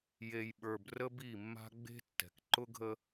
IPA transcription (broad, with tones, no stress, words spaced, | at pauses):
je˨jɓə˞˨b rə˦bi˦˨mːa̤˦ ɡ͡be̤˦tːɛ̤˨k ǃʊ˦ɡʱə˦